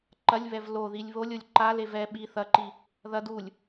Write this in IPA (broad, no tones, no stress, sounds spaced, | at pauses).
ǃ ɐ lʲ β ɛ v l o ð i lʲ β o lʲ o lʲ ǃ a l e v ɛ ɓ i θ ɐ ǃ i | ð ɐ d u lʲ